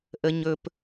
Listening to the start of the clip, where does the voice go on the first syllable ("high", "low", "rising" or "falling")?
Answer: low